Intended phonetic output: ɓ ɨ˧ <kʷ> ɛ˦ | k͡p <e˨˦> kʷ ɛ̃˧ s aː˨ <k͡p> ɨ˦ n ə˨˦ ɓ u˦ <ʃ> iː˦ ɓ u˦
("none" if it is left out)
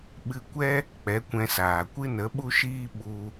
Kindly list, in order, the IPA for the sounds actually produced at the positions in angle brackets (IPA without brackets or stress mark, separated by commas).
kʷ, ɛ˨˦, kʷ, ʃ